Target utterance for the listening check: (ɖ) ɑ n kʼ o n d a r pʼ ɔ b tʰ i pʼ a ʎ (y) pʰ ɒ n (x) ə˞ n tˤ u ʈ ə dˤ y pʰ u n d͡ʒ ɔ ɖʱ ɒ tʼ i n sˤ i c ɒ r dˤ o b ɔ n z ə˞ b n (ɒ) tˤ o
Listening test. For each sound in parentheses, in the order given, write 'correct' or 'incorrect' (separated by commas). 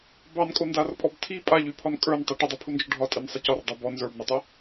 incorrect, correct, incorrect, incorrect